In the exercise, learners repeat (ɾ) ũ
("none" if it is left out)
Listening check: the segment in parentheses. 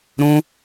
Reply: ɾ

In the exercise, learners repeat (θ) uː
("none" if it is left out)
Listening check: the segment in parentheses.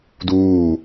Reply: d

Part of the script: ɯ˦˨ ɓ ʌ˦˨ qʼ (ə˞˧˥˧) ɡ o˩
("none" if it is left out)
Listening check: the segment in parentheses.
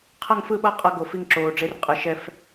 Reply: ʌ˧˥˧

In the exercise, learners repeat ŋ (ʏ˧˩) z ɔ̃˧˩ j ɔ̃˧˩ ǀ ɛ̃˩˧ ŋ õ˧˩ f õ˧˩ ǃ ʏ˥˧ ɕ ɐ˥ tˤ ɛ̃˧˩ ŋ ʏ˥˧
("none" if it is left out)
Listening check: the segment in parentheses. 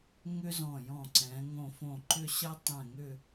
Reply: ʏ˥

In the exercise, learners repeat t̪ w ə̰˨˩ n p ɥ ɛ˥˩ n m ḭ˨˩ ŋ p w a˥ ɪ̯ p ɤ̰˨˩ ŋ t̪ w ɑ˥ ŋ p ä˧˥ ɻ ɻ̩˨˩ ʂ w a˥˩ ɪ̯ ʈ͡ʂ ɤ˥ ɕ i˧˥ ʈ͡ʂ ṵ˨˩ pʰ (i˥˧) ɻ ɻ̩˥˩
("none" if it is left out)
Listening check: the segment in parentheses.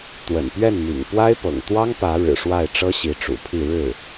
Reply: i˥˧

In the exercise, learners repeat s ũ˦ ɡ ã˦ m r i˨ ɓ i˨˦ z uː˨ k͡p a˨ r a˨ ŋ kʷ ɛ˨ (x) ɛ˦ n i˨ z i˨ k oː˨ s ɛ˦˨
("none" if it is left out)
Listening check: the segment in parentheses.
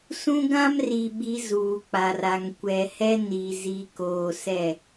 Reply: h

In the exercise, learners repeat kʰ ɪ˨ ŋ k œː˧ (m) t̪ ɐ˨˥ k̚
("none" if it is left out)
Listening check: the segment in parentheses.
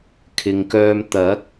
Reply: m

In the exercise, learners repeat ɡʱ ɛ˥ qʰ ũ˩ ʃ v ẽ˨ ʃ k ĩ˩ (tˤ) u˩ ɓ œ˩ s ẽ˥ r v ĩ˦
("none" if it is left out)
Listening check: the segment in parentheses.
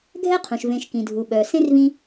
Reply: dʱ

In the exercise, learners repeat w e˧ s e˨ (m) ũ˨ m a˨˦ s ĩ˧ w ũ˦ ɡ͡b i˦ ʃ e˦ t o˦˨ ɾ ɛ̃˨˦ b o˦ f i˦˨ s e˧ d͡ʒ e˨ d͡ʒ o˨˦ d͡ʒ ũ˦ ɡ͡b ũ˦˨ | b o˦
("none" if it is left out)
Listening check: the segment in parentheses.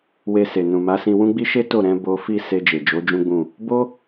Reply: n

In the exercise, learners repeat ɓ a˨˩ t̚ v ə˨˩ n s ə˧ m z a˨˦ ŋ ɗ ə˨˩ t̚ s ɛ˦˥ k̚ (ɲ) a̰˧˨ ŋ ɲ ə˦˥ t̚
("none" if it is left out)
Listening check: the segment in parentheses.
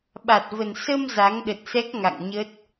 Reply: ŋ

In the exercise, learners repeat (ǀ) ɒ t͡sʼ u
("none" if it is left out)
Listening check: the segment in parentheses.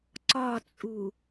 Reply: ǀ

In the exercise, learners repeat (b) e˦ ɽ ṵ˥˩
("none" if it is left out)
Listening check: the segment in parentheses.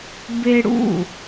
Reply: b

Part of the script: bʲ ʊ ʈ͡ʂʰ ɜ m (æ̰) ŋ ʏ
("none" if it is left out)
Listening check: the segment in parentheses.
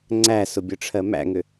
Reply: æ̰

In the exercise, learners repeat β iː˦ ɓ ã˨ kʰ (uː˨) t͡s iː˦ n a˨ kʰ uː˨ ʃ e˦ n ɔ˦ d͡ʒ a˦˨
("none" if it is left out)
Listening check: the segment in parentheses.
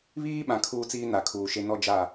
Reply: uː˦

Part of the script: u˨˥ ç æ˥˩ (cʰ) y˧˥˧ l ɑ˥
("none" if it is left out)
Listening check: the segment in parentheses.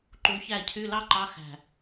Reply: cʰ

